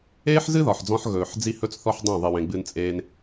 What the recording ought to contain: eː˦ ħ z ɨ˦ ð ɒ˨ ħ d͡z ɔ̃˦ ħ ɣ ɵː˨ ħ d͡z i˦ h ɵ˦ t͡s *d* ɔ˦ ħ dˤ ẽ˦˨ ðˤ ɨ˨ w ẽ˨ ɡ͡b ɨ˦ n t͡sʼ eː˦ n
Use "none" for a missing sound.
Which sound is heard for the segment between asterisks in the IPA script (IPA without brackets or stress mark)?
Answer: θ